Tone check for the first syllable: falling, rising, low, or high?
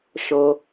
high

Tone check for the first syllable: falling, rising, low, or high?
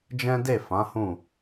high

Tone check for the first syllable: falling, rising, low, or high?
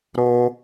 high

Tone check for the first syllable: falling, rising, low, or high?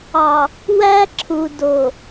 low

